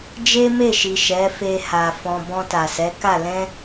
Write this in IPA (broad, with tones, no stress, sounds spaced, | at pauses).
d͡ʒ e˦ m e˦˨ ʃ i˨ ʃ ɛ˨˦ f e˧ h a˨ f ɔ̃˨ b ɔ̃˧ t a˨ s ɛ˨˦ k a˦˨ l ɛ̃˧